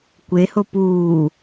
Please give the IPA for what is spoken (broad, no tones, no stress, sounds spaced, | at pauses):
kʷ e h o p uː